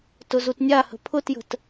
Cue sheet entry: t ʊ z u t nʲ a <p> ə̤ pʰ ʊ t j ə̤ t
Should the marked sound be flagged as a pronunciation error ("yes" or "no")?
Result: yes